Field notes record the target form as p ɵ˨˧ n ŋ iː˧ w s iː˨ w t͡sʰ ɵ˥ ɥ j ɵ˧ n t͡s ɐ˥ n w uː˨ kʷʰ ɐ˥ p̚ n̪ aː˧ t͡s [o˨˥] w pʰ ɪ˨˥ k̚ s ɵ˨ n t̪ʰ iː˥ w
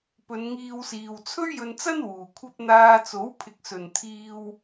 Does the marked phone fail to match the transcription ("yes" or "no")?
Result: no